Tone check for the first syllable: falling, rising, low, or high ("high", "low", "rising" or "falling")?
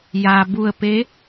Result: low